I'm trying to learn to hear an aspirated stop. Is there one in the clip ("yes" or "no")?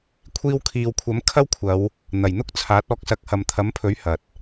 yes